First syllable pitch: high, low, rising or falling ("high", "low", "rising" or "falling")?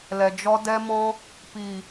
low